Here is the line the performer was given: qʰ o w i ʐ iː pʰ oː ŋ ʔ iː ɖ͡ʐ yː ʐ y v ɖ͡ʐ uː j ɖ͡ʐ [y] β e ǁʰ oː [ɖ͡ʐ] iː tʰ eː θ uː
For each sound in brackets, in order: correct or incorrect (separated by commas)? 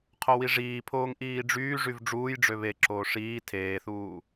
incorrect, incorrect